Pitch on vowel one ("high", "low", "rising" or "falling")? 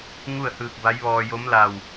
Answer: falling